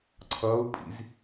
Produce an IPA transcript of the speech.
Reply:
ǀʰ ʌː u̯ pʼ ḭ z

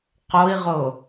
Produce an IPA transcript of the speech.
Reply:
q o i̯ ʁ o

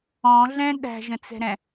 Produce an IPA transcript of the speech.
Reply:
ɔ̃ ɮ ɛ̃ ɗ æ̤ ʒ ə̃ t͡s ɛ̤ ɾ ɛ̃

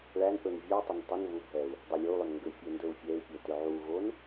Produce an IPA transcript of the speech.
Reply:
ɭ æ n ʔ ɵ n vʲ o u̯ tˤ ʏ n tˤ ʏ n β u bʱ ɛ u̯ | dˤ ʏ lʲ o u̯ lˠ ɵ n ŋ ɡ ʏ fʲ ɛ n d ɵ u̯ fʲ ɛ i̯ pʲ ɛ t ʏ ʕ u ɣ o n

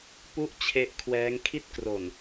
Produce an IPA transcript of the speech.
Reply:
p u˦˥ ʔ t͡ɕʰ e˦˥ ʔ kʰ w ɛː˦˥ ŋ kʰ i˥˩ t̚ k r o˨˩ n

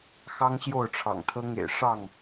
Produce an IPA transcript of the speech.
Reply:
x ɑ˦ ŋ ɕ j o˥˨ ʊ̯ ʈ͡ʂʰ ɑ̰˨˩ ŋ t̪ʰ ɤ˦ ŋ ḛ˨˩ ɪ̯ ʂ ɑ˥˨ ŋ

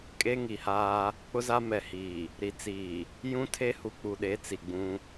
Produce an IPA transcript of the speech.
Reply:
kʼ e˦ ŋ i˨ h aː˦ | k͡p ʊ˦ z a˦ m ɛ˨ h iː˨ | ɾ i˨ t͡s iː˨ | j ũ˦ tʰ e˦ h u˨ k͡p u˨ ɗ e˨˦ t͡s i˨ ɡ͡b ũ˦

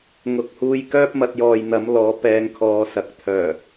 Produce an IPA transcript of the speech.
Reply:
ŋ ʊ˨ k̚ h uː˧ j k œː˥ p̚ m ɐ˨˥ t̚ j ɔː˨ j n̪ ɐ˨˥ m l ɔː˨˧ p ɛː˧ ŋ kʰ ɔː˨˧ s ɐ˨ k̚ t̪ʰ œː˨˩

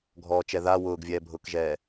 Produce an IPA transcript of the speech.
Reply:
ɡʱ ɔː t͡ʃ ɛ ð a w ʊː ɡ vʲ ɛː bʱ ʊː k ʒ ɛː

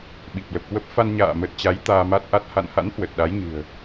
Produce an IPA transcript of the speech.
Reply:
ɓ i˨˩ p̚ l ə˨˩ p̚ k w ə˦˥ p̚ f a˧ n ɲ a̰ː˧˨ m ə˨˩ t̚ t͡ɕ a˨˦ j t̪ aː˧ m a˦˥ t̚ ʔ a˦˥ t̚ h a̰˧˨ n h a̰˧˥ n h w ə˨˩ t̚ ɗ a˨˦ j ɲ ɨ̤˨˩ ə̯

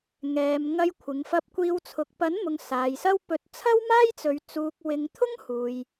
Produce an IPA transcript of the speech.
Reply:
ŋ ɛː˨ m ŋ ɐ˧ j kʷʰ ɪ˨ ŋ f ɐ˧ p̚ kʷ iː˧ w t͡sʰ ʊ˨ k̚ p ɐ˨˥ n m ʊ˨ ŋ s aː˨ j s ɐ˥ w p ɵ˨˥ t̚ t͡sʰ ɐ˥ w m aː˥ j t͡s ɵ˨˧ ɥ t͡s uː˧ k̚ w ɪ˧ ŋ t̪ʰ ʊ˥ ŋ h uː˨ j

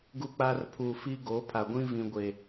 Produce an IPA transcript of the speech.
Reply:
ɡ u˦ k͡p aː˦ r pʰ uː˨ f iː˦ ɡ oː˨˦ pʰ a˨ ɡʷ ĩ˦ v ĩ˨ ɡʷ e˨

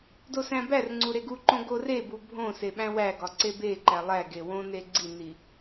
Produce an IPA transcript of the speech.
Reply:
d o s æ̃ b æ r ŋ͡ǀ u ɾ e ɡ u ǃ õ ɡ o r e b u bʱ õ s e ɓ æ̃ w æ ɡ ɒ ǀ e b e ǃ æ lˠ æ ɡ e w õ n e ɡ͡ǀ i n i

